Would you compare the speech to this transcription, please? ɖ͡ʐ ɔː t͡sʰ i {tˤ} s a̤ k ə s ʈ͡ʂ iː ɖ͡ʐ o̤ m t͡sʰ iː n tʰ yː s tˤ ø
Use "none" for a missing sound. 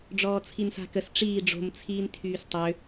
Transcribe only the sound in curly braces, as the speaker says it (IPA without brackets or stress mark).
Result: n